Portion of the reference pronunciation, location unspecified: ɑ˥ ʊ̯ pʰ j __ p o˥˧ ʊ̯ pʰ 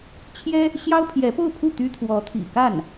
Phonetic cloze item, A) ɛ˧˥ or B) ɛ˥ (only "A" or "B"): A